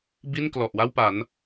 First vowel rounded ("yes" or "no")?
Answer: no